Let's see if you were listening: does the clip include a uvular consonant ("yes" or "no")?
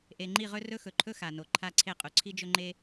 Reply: yes